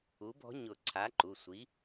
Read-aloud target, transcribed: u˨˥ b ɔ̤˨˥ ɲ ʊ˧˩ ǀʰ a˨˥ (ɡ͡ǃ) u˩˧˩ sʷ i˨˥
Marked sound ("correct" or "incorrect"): incorrect